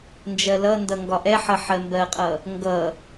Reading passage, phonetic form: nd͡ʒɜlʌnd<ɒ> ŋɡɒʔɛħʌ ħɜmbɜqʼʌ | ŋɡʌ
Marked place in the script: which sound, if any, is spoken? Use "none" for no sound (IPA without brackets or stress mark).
ʌ